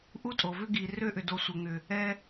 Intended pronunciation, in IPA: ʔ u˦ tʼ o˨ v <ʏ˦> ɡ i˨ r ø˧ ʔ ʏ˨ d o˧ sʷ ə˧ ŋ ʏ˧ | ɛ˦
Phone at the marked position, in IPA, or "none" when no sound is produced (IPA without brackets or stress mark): ʏ˦